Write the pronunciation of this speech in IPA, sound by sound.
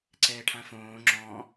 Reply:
ǀ ɛː ʈʰ ã f õː ŋ͡ǁ ɔ̃

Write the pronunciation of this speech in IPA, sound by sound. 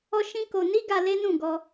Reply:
ɔ˦ ʃ ĩ˦ k o˧ n i˦ ɡ a˧ l e˦ n ũ˦˨ ɡ ɔ˧

